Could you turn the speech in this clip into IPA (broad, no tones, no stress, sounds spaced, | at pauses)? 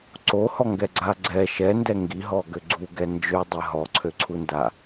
ǀ o h ɔ ŋ ɡ ɛ ɡ͡ǀ a ɡ͡ǀ ɛ ʃ ɛ n d ɛ ŋ ɡ i ɦ ɔ ɡ ø ɡ͡ǀ u ɡ ɛ n d͡ʒ ø dˤ ɛ ɦ ɔ ǀʰ ø ǀʰ u n d a